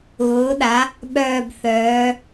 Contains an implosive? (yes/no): yes